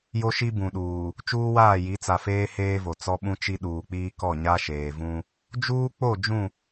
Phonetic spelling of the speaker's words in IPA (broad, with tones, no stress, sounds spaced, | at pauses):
j o˦ ʃ i˦ b ũ˨ ɗ uː˨ | t͡ʃ uː˦ w aː˦˨ j i˨˦ t͡s a˨ f eː˦ h eː˦ v o˨ t͡s ɔ˦ ɓ ũ˦ t͡ʃ i˦ ɗ uː˨ k͡p iː˦ k ɔ˦˨ ɲ a˦ ʃ eː˨ v ũ˦ | d͡ʒ uː˦ k͡p o˦˨ d͡ʒ ũ˦˨